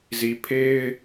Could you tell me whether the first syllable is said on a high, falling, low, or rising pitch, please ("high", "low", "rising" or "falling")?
low